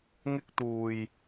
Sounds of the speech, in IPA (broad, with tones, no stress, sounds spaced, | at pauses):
ŋ ɪ˥ k̚ t̪ uː˨˩ j